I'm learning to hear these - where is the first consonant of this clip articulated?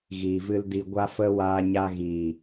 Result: velum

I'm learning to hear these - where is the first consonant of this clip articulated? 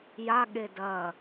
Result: palate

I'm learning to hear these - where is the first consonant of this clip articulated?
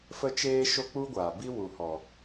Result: lips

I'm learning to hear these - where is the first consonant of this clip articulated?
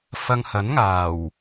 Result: lips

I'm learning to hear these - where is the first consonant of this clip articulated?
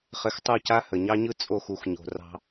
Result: uvula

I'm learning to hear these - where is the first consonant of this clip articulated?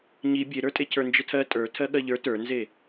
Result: palate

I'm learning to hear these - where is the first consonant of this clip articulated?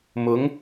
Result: lips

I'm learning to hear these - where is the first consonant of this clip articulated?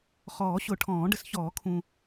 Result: uvula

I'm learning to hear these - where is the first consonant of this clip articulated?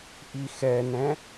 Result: throat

